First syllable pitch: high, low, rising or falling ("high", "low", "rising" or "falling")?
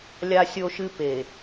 high